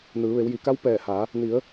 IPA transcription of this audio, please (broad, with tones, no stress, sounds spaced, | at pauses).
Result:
n ɯː˩˧ ʋ e˩˧ w j i˩ k a˧˥ w p ɛː˧˩ h a˩˧ | n i˩˧ ə̯